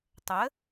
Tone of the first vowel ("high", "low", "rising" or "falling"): rising